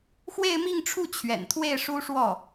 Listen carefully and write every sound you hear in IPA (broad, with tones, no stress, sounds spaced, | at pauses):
x w e˥˧ ɪ̯ m i˥˧ ŋ ʈ͡ʂʰ u˥˩ t͡ɕʰ ɥ ɛ̰˨˩ n t̪ʰ w e˥˩ ɪ̯ ʂ u˥ ʂ w ɔ˥˩